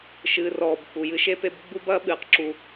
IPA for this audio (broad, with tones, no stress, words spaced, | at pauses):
ʃɨː˨rɔː˨b k͡pu˨jɨ˦ʃe˦pe˦b ɡ͡bu˦bɐː˦ ɓɨː˨qǁu˨